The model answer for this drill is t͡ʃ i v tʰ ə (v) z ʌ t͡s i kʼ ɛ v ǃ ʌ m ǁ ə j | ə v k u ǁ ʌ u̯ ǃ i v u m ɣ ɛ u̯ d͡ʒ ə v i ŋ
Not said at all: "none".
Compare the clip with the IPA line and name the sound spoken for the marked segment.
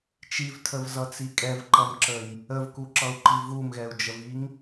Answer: v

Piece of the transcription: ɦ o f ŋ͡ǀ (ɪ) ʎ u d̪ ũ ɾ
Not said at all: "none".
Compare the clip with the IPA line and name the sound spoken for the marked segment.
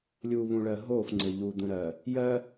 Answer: ɪ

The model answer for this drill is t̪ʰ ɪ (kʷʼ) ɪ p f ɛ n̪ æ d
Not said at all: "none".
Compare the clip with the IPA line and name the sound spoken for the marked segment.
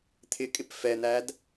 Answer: kʼ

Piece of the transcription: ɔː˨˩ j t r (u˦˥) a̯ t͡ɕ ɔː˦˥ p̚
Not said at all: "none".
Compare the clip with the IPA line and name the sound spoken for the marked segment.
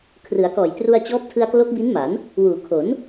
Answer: u˧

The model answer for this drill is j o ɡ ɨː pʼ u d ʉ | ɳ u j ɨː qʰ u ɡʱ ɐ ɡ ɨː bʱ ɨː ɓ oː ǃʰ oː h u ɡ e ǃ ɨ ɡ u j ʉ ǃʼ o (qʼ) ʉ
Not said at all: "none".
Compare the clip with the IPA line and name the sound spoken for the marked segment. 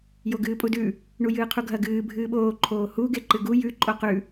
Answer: q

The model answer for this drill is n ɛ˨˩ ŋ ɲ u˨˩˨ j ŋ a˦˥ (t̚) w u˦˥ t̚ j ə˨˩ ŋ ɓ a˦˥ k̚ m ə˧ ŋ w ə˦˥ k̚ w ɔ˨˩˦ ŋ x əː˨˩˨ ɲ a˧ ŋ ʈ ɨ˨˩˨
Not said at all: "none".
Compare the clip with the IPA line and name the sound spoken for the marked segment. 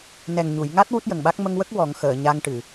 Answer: t̚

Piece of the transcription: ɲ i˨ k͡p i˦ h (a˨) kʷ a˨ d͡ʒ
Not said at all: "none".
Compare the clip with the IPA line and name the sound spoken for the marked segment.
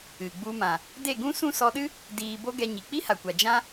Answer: a˨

